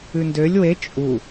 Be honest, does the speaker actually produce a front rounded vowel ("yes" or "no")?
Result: yes